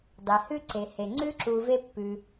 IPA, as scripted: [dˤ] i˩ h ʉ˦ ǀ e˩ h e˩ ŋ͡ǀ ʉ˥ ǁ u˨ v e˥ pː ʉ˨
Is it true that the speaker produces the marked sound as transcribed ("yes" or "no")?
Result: yes